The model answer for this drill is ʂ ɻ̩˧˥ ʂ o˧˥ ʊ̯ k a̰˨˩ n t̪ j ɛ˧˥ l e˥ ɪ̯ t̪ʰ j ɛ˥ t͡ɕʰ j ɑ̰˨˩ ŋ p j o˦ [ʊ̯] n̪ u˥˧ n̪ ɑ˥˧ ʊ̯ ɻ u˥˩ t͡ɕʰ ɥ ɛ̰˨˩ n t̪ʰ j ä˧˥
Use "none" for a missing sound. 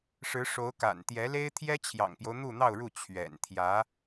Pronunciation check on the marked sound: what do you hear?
ʊ̯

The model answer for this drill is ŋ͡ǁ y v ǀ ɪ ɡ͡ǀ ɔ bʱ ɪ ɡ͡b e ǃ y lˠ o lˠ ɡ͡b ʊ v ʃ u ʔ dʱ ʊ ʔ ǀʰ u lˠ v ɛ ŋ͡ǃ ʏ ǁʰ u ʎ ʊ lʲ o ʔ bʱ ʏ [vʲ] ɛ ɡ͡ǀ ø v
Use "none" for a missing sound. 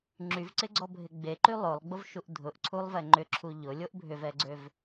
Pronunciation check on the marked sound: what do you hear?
v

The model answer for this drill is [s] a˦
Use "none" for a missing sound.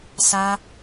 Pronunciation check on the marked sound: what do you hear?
s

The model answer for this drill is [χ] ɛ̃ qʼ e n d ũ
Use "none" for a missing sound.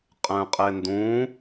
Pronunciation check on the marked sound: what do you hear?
qʼ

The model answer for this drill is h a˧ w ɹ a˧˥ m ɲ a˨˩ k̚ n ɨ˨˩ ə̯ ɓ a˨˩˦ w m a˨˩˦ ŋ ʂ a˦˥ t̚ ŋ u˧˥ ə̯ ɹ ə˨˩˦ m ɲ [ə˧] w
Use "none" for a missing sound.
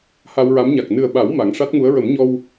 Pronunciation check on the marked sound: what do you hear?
ɔ˧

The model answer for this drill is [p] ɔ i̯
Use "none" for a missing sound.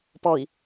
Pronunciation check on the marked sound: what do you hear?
p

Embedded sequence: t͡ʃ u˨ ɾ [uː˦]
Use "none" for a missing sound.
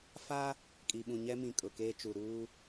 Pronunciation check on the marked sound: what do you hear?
uː˦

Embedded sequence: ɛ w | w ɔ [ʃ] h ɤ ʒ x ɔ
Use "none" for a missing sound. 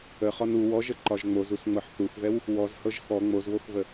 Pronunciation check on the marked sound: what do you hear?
z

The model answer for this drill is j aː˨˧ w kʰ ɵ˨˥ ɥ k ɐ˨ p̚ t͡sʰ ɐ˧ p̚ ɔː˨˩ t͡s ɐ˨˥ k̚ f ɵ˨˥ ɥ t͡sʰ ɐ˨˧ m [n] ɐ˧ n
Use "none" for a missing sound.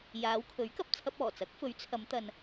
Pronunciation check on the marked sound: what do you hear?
t̪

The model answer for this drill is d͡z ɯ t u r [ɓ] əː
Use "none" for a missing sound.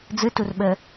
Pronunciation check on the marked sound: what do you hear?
ɓ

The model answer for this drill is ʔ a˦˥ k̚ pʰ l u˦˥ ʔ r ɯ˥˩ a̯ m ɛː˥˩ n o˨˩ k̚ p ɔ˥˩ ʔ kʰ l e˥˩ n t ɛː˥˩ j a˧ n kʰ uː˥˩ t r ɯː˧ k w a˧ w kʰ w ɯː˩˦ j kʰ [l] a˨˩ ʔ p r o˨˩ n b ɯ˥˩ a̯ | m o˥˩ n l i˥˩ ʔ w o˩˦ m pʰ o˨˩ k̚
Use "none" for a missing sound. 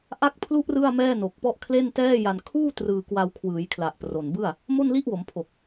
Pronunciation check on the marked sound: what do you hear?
l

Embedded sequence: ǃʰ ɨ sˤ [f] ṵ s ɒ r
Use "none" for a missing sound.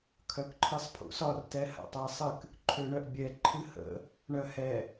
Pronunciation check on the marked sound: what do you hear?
pʰ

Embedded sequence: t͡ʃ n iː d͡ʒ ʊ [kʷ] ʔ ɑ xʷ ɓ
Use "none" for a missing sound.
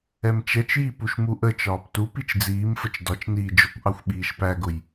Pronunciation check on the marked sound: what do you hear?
kʷ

